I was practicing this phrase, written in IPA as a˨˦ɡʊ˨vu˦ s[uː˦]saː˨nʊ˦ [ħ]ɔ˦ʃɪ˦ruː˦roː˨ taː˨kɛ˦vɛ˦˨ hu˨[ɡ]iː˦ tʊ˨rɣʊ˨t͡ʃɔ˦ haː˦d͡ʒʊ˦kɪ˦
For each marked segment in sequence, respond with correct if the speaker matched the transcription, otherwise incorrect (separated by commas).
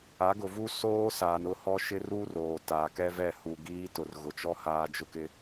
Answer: incorrect, incorrect, correct